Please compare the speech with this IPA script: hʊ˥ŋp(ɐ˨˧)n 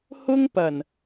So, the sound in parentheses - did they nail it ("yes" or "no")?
no